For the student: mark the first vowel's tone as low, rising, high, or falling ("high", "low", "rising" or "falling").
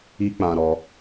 high